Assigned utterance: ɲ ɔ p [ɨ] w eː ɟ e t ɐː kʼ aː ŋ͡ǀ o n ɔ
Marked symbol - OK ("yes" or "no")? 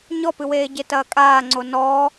yes